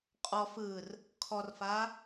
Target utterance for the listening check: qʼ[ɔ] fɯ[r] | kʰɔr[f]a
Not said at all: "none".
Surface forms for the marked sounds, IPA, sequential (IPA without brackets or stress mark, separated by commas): ɔ, r, f